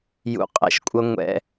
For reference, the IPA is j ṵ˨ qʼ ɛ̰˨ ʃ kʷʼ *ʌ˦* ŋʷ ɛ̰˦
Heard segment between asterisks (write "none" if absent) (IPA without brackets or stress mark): ʌ˦